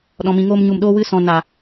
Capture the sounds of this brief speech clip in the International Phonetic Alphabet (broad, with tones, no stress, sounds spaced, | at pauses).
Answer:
ɗ ɔ̃˨ m ĩ˨ ŋ oː˧ m ɲ u˨ m ɗ oː˧ w ɨ˧ s ɔ̃˨ n a˨